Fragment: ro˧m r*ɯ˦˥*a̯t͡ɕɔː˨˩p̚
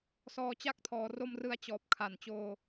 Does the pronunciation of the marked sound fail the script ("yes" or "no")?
no